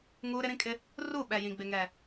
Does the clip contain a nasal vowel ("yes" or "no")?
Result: yes